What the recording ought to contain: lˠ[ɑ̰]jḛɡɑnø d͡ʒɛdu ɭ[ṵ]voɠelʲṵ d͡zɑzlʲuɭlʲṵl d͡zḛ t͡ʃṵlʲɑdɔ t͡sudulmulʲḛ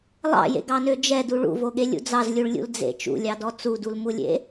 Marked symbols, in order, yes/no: yes, yes

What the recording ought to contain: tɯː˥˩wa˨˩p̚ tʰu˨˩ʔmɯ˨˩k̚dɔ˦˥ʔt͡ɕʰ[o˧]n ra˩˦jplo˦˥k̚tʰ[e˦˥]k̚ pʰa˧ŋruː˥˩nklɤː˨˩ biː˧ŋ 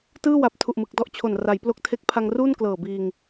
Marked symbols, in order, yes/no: no, yes

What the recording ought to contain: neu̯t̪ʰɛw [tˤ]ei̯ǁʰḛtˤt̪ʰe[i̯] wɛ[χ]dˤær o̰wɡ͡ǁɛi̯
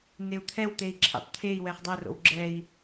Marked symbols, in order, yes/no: no, yes, yes

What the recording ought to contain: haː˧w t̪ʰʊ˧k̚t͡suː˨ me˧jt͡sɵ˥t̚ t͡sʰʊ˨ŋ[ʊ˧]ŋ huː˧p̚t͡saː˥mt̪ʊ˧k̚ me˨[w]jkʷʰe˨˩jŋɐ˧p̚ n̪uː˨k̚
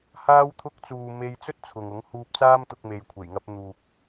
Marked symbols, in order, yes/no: no, no

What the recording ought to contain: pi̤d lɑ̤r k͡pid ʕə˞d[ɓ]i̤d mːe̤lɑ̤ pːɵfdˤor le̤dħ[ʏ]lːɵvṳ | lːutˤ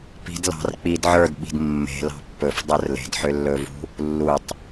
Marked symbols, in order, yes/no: yes, yes

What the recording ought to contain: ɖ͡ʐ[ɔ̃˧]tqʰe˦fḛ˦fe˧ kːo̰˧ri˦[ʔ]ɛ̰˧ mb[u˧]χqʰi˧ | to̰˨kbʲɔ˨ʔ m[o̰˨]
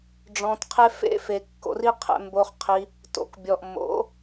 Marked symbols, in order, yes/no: yes, no, no, no

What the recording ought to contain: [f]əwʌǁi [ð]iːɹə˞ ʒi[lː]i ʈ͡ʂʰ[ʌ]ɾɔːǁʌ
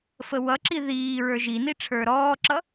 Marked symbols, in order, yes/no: yes, yes, no, no

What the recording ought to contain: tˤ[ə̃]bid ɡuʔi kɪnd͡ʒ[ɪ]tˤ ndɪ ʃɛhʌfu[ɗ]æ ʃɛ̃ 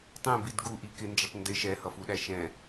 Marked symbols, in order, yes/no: no, yes, yes

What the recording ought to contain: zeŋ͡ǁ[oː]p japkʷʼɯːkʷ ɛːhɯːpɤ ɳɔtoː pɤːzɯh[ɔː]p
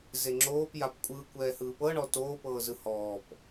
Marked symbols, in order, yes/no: yes, yes

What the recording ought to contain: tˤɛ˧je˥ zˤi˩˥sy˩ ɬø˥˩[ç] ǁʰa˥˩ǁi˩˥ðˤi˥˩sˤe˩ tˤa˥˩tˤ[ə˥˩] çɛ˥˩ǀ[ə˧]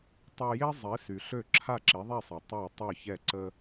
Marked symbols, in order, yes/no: no, no, no

